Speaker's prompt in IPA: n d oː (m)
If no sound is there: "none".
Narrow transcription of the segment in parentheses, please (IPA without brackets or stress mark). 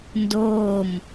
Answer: m